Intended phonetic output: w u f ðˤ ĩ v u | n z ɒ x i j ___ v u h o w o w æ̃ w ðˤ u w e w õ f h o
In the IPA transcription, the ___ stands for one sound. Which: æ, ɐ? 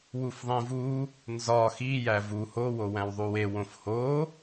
æ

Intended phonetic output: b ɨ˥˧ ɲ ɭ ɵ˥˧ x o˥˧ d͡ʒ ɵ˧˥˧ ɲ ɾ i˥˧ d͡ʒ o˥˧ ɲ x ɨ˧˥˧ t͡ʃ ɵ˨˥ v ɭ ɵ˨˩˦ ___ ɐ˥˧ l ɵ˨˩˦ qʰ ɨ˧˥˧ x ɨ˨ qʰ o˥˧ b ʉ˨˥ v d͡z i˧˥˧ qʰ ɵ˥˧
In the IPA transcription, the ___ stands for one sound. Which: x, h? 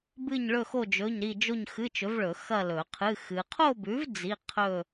x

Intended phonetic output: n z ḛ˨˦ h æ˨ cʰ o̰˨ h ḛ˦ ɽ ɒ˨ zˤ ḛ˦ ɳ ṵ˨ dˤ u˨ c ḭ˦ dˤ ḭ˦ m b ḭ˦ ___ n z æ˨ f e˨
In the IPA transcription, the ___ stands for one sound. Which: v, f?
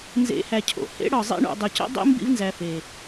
v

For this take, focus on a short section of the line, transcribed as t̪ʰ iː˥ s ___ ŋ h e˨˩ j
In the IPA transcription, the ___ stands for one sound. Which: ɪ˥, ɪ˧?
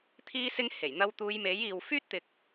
ɪ˥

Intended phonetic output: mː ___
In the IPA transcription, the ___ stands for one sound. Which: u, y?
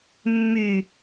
y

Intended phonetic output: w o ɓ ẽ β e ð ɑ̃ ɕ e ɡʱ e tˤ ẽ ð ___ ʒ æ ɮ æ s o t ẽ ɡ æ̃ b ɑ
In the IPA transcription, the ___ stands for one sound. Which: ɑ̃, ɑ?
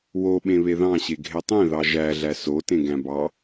ɑ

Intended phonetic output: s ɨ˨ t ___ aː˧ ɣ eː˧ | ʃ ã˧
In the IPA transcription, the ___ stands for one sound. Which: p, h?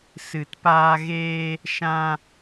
p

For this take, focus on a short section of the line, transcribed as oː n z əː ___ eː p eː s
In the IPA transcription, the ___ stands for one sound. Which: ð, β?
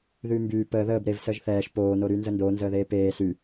ð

